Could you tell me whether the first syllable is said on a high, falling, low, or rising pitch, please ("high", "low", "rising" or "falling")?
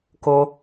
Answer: high